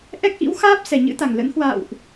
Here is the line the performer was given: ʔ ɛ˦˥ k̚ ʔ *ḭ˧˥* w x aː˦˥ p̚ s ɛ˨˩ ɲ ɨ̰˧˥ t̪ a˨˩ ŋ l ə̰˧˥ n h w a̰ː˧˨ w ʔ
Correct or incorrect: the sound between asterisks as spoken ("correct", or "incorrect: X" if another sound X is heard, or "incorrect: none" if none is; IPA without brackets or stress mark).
correct